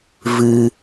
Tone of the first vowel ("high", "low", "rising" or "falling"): high